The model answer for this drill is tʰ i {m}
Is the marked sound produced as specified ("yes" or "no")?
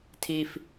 no